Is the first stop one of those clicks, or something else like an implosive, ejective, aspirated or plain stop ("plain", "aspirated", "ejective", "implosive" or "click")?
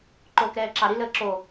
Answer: click